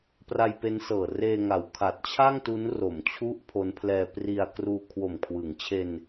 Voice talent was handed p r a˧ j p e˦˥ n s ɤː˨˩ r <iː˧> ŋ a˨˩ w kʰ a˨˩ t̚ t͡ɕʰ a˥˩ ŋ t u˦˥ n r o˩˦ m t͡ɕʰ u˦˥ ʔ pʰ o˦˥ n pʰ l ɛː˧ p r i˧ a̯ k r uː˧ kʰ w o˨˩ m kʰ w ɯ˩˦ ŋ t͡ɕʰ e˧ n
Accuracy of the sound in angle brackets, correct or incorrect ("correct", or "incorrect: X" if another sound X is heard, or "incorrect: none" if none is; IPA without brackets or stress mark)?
incorrect: eː˧